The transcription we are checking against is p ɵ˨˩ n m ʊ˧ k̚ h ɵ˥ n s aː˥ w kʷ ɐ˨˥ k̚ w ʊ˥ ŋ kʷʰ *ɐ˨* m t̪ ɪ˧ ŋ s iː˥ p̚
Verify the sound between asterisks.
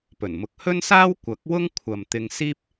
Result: correct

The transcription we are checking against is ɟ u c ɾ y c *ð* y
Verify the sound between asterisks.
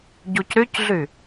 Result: incorrect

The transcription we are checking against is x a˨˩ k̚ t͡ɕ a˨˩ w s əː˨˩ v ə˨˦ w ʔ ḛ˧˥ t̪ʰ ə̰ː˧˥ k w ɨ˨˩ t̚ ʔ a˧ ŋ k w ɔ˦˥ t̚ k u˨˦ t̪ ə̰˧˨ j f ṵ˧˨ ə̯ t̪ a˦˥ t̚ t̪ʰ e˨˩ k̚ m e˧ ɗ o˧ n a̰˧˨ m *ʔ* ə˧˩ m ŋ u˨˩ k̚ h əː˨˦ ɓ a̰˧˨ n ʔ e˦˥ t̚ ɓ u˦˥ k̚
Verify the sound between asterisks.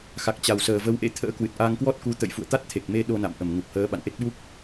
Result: correct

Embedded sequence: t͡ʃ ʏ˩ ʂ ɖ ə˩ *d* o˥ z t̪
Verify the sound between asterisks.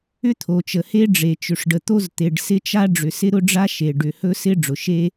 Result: incorrect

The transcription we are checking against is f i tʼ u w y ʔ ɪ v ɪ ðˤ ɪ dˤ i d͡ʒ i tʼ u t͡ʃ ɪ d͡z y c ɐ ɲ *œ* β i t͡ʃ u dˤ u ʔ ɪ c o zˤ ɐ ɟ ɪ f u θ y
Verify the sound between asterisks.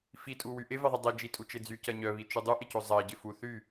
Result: correct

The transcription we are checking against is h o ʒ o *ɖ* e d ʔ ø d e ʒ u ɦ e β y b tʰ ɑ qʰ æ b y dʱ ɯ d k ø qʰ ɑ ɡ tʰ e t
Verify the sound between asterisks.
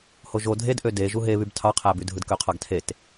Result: incorrect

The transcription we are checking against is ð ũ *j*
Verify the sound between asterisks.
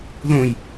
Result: correct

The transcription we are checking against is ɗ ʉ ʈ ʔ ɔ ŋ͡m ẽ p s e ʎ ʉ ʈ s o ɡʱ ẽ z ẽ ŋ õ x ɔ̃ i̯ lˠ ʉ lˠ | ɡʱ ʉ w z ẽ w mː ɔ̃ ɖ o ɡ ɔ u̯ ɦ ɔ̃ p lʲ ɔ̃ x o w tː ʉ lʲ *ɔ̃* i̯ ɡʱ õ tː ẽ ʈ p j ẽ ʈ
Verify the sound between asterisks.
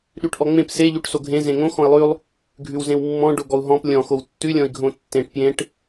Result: correct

